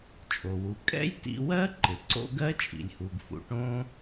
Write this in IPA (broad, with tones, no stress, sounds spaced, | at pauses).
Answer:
t͡ʃʼ o˩ w u˩ kʼ ɛ̰˥ j t ḭ˧ w ɜ˥ ǃ ɪ˩ ǀ o̰˥ ɡ ɜ˥ t͡ʃʼ ḭ˩ lʲ h u˩ ɡ f ṵ˩ ʈ õ˧